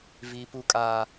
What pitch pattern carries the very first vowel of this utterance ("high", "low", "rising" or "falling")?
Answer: low